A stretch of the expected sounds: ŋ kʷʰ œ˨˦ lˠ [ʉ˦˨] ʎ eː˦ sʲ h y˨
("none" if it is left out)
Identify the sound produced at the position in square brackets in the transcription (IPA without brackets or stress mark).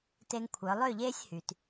ø˦˨